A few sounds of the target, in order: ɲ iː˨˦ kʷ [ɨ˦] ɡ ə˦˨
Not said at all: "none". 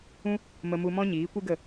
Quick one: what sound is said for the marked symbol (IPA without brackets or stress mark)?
ɨ˦